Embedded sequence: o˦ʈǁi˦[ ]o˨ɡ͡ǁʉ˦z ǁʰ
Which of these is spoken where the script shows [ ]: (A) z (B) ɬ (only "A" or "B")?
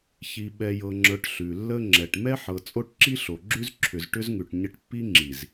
B